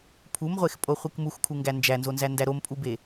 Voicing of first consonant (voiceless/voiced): voiceless